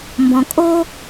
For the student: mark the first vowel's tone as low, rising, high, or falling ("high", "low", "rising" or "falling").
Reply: low